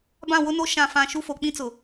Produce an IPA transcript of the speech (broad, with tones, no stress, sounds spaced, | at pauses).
b ã˦˨ w ʊ˦ n o˦ ʃ ã˦˨ f ã˦˨ ʃ u˦ f o˨ k͡p ĩ˦ t͡s ʊ˨